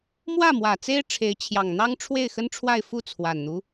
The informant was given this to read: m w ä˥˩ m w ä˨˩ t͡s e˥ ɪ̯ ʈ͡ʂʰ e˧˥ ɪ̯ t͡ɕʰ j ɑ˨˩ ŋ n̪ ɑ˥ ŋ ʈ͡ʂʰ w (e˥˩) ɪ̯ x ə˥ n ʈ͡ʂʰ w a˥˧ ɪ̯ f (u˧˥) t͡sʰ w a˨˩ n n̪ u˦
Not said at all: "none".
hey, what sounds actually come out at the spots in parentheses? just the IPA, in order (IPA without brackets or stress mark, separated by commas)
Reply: e˥˩, u˥˩